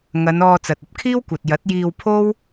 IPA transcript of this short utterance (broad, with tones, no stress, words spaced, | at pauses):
ŋɐ˨˧nɔː˧t͡sɐ˨t̚ɐ˧p̚ kʰiː˥wkʷɐ˨t̚ jɐ˨˥t̚jiː˧wpʰo˥w